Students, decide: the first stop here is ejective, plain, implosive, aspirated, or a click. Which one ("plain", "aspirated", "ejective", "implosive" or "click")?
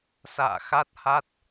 plain